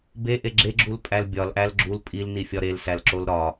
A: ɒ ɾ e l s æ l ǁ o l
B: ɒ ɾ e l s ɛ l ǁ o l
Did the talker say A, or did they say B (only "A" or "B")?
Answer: A